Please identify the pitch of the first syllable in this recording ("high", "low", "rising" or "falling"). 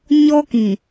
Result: high